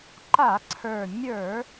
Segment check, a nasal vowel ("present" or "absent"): absent